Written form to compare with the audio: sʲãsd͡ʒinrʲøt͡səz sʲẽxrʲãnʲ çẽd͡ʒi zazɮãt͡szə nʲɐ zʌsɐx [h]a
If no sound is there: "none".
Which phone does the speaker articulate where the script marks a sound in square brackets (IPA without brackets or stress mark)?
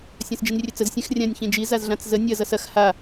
h